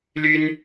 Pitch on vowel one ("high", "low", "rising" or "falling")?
high